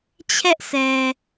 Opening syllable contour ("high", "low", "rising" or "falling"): high